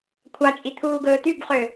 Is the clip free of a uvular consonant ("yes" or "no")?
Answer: no